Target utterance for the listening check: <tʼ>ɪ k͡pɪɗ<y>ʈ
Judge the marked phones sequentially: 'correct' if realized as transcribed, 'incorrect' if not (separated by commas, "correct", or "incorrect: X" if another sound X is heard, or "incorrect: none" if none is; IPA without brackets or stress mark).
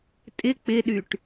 correct, correct